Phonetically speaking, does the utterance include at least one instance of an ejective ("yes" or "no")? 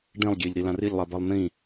no